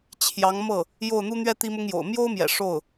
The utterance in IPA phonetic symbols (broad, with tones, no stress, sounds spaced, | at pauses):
t͡ɕʰ j ɑ˧˥ ŋ m ɤ˥˩ | j o˥˩ ʊ̯ n̪ u˥ n̪ ɥ ɛ˥ t̪ i˥ m ʊ˥ ŋ j o̰˨˩ ʊ̯ m j o˥ ʊ̯ m j ɛ̰˨˩ ʂ o˥˩ ʊ̯